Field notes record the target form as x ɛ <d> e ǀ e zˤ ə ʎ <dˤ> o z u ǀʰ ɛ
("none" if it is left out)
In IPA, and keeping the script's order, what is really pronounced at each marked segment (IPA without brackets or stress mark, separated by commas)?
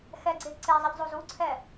ɡ͡ǀ, zˤ